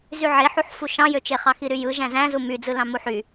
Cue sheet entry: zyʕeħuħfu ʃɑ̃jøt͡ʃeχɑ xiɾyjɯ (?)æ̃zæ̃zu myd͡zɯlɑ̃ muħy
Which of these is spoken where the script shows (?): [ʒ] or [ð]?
ʒ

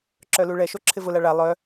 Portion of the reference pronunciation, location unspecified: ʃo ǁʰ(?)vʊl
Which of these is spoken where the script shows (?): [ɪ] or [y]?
ɪ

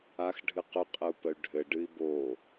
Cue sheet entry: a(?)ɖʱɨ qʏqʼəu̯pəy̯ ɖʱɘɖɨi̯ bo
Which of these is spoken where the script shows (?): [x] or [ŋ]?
x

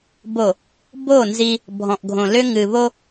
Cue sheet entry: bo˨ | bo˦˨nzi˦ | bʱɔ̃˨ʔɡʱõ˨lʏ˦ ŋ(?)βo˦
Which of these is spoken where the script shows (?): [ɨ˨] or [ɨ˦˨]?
ɨ˨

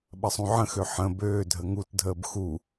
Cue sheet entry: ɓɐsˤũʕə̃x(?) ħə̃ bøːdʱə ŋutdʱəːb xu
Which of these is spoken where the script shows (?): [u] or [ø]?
ø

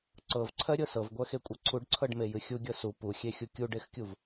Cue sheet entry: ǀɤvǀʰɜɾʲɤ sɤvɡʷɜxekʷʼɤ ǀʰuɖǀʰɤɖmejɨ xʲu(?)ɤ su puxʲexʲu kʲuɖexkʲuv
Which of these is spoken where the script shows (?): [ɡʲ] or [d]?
ɡʲ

